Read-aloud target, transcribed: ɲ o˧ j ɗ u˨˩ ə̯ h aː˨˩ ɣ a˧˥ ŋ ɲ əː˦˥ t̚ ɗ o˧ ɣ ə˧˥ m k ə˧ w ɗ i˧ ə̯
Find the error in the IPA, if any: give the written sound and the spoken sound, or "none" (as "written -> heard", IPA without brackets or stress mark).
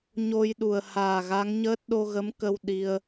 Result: none